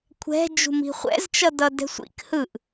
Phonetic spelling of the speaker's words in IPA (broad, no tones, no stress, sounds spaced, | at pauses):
kʷʰ ɛ̤ d͡ʒ ṳ m i̤ χʷ ɛ̰ z t͡ʃ ʌ d ʌ d ɛ̤ sʷ ḭ k h ɯ ʔ